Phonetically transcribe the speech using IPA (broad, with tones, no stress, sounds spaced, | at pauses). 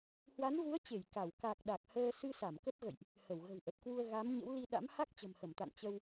h w a˨˦ n v u˨˦ ə̯ t͡ɕ e˧˩ j k a˧˩ w k a˨˩ k̚ ɗ a˨˩ k̚ h əː˧ s ɨ˧ s a˧˩ m k ə˦˥ p̚ ɣ ə̰˧˨ j ʔ | h ə˧˩ w ɣ ə̤˨˩ w ʔ ə˨˩ p̚ k w u˧ ə̯ ɣ a˨˦ m ɲ ə̰˧˥ w l i˧ ɗ a̰˧˥ m h a˦˥ k̚ t͡ɕ ə̤˨˩ m h ə˧˩ m t̪ a̰˧˨ n t͡ɕ ə˧ w